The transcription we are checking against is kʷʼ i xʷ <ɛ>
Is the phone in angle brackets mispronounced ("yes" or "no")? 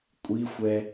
no